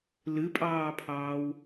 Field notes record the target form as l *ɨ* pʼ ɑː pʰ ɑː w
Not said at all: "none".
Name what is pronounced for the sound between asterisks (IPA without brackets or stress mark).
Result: ɨ